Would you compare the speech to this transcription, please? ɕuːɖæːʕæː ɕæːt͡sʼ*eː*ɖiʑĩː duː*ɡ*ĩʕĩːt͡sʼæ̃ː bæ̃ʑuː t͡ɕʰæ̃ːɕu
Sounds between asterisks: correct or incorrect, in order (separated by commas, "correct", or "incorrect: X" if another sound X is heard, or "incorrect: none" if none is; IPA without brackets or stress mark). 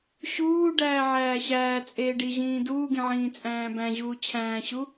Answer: correct, correct